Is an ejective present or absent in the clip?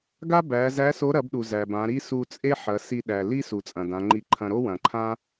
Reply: present